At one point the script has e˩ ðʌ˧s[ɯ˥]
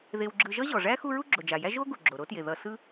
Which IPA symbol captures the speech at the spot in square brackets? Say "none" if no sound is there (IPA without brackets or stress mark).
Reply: ɯ˥